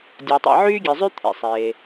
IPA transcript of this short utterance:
dʲa˩tˤḭ˩ ʕyː˥ɡʲe˩zˤy˥ t̪ʰḛ˩sˤeː˩

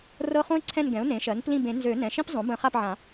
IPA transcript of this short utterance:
rɤ˦˨χõ˥ɪ̯ǀʰɛ̃˦˨nɡɛ̃˩˥ʊ̯ nẽ˩˥ʃɜ˩˥n plĩ˦˨bẽ˨˩˦ nzø˨˩˦ nɛ̃˩˧˩ʃĩ˥p zˤõ˩˥ bə̃˨˩˦χa˦˨pʕã˨˩˦

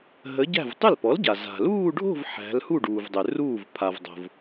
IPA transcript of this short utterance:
ɦə˩˥ɟæ̤˥˩v tˤʏ˥˩lpɔ˩˥lɟa˩ za̤˩luː˥˧ɖʱo̤˥˧v ħæ̤˩˧lhu˥˩ ɖuː˩vdˤʏ˩ ruː˥˩vpʰa˩vdˤo̤˩v

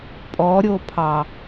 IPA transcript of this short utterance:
pʼɔɾʲopʰɑ

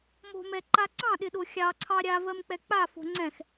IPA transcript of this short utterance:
mo̤mɛ ǃaǀɑ̃ɗɪ ɗoxʲɑǀʰɑ ɾʲavɜm k͡pɛk͡pafo̤ ŋ͡ǀɛ̃x

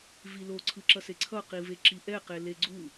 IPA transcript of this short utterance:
vilo ǀʰɯǁʌseǀʰʌ qiveǁiʔɛ qeleɡ͡ǀu

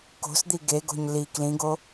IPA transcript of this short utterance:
ko̤sd̪i ɡeɡo̤ɲ li klĩɡo

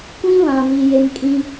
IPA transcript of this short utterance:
kʷĩ˦βã˨vi˨ je˦m kʼĩ˦

